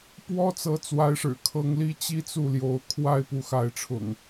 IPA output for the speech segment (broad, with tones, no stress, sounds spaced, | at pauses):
p w ɔ˦ t͡s ɤ˨˦ t͡s w a˨˦ ɪ̯ ʂ ɻ̩˨˩ kʰ ɤ˨˦ ŋ l i˦ t͡ɕ i˦ t͡s u˥˨ l j o˨˦ ʊ̯ kʰ w a˦ ɪ̯ p u˨˦ x a˨˦ ɪ̯ ʈ͡ʂʰ ʊ̰˨˩ ŋ